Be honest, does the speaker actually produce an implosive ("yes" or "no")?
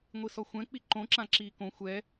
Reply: no